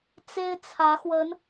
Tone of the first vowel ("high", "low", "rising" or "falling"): high